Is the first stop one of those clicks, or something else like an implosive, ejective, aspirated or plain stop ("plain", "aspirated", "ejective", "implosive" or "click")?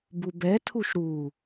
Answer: plain